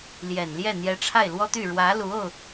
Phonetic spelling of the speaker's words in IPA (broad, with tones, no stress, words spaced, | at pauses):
ljɛ˨˩nljɛ˥˩ n̪jɛ˧˥ʈ͡ʂʰa˥˩ɪ̯lwɔ˥t̪y˥˩ ɻwä˧˥lu˧˥o˧ʊ̯